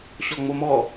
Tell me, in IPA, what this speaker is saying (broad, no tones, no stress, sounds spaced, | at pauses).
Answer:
ɕ ɔ ŋ͡m o m ɔ